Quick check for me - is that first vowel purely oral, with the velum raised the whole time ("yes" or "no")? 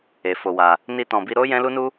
yes